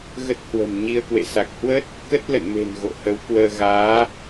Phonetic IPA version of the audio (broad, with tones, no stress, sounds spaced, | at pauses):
ɣ ə˦˥ t̚ h w ə̤˨˩ m ɲ i˧ ə̯ k w ḛ˧˨ s a˨˩ k̚ h w ə˦˥ t̚ | k ə˦˥ t̚ l ə̰˧˨ n m e̤˨˩ n ɣ o̰˧˨ h ə˨˦ w k w əː˧ ɣ aː˨˦